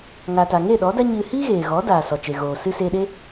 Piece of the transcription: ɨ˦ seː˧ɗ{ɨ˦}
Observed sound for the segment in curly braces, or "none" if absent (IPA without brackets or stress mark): e˦